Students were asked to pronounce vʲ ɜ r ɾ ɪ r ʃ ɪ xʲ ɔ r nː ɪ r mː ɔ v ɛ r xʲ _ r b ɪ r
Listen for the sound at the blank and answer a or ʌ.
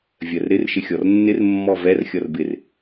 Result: ʌ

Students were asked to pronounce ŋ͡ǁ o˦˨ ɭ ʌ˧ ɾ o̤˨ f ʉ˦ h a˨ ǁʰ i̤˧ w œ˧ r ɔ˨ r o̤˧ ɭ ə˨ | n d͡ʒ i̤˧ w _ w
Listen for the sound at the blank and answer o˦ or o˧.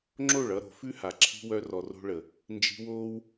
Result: o˦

